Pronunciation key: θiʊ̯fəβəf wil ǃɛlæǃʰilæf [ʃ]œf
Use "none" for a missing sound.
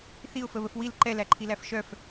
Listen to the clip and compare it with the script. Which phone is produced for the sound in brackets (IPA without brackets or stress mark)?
ʃ